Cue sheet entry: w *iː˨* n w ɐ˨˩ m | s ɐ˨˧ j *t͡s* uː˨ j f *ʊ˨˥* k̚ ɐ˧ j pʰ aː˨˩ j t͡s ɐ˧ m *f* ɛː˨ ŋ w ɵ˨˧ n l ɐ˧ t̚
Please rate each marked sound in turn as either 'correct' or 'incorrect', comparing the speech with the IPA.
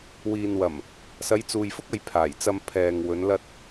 correct, correct, incorrect: ʊ˥, incorrect: pʰ

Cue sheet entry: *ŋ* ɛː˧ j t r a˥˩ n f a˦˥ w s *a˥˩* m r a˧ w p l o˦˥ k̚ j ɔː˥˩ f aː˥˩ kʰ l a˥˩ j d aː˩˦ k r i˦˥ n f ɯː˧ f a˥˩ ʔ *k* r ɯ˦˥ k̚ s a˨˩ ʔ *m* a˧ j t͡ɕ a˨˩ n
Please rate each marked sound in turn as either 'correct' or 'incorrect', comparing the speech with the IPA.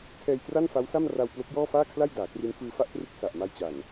incorrect: kʰ, correct, incorrect: t, correct

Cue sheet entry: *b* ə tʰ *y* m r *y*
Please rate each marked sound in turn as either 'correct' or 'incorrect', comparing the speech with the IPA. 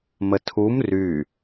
incorrect: m, incorrect: u, correct

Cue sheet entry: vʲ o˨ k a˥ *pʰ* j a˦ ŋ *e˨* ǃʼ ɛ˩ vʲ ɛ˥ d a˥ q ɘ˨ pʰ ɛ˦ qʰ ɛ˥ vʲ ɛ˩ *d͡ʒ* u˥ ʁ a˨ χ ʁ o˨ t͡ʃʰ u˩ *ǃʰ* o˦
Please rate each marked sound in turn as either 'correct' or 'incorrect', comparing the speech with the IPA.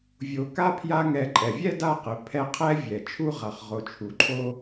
correct, incorrect: ɛ˨, incorrect: t͡ʃʰ, correct

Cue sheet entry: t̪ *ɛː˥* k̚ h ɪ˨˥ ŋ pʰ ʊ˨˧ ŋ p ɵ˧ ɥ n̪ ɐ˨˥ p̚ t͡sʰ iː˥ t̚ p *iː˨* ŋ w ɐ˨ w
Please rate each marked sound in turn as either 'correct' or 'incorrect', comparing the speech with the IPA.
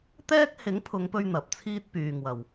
correct, incorrect: yː˨

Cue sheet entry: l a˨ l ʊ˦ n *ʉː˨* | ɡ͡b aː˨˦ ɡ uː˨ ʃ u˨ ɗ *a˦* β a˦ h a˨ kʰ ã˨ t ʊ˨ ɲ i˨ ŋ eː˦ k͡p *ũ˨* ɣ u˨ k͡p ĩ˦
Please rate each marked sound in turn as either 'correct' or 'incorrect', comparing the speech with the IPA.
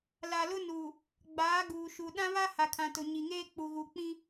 incorrect: uː˨, incorrect: ã˦, incorrect: u˨

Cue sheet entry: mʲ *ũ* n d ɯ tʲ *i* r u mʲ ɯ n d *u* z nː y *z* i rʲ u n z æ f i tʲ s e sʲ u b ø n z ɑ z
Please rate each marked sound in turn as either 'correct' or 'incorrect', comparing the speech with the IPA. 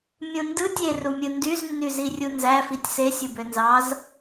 correct, incorrect: e, incorrect: y, correct

